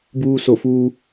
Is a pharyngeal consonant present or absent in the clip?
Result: absent